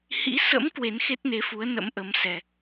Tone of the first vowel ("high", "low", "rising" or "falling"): rising